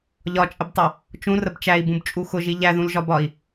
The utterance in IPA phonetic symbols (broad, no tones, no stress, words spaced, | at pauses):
ʎɒt͡ʃʼəbtˤʌ | t͡ʃũrəb t͡ʃæi̯bũbt͡ʃʼu xʊʒi ʎæðũlʒɒbɒi̯